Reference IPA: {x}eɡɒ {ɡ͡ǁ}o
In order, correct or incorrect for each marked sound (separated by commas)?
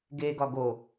incorrect, incorrect